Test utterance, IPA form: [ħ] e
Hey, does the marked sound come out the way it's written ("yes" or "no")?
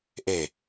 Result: no